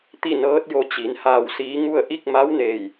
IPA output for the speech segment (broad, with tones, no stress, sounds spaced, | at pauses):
t̪ i˥˨ n ɤː˧˥ t̚ j o˧ t͡ɕ i˩˧ n h aː˧˩ w s iː˧˥ ŋ u˥˨ ə̯ ʔ i˥˨ k̚ m a˧˥ w n eː˧˩ j